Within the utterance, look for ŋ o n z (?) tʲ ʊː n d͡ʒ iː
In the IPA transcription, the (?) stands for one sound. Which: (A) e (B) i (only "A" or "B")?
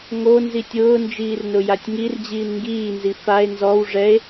B